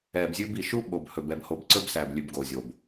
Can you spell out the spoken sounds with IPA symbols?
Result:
ɛː˨bzʲʉ˦bi˨ ʃu˦ɓo˨bhɵ˨b ɛ˨bho˨bǀɵ˦b sæ˨blʲʉ˨bɡo˨ zʲo˨b

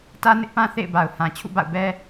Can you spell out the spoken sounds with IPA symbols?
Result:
tä˦nɪ˦ʔpã˦ θḛ˦˨ɪ̯ba˨ʊ̯ hã˨ t͡ɕʰṵ˦˨ba̰˦˨ʊ̯bɛ˦

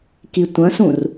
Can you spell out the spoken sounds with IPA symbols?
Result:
kitʷɐ̃sũr

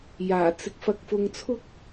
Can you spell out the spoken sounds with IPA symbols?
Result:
jaː˨˩t͡sɪ˨k̚ fɐ˧k̚fʊ˧ŋt͡sʰʊ˥k̚

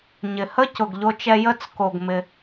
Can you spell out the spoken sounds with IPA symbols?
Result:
ɲɪ˩hə˥cʊ˩ɡ ʎo˧t͡ʃɛ˧ jə˧t͡s ko˩ɡmɪ˩

